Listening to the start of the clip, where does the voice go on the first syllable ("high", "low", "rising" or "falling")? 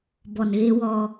low